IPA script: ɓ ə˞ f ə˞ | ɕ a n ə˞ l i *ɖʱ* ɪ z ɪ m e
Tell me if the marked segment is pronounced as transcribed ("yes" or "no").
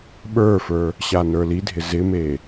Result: no